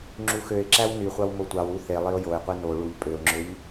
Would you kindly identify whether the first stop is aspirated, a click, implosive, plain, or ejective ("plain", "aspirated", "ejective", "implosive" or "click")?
click